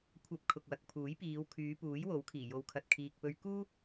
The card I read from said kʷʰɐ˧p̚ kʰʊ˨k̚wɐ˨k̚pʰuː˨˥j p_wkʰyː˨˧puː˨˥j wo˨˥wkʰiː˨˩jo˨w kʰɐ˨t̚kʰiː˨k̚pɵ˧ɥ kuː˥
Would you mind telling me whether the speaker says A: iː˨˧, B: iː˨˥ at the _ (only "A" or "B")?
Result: A